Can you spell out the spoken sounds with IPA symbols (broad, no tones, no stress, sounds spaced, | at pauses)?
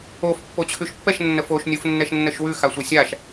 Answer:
o f pː o t͡ɕʰ ʉ ʃ pː ɛ ʃ nː ə f o ʃ nʲ u f nː ɛ ʃ nː ə ʃ w ʉ x a sʷ ɛ sʲ a ʃ